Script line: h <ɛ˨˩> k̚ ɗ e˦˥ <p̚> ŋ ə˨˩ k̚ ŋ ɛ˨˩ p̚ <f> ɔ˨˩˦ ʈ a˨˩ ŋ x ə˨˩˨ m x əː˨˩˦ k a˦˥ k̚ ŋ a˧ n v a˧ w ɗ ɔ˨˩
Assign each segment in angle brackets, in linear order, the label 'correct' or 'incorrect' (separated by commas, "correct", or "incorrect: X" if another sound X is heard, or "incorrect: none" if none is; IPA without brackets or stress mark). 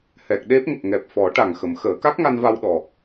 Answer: correct, correct, correct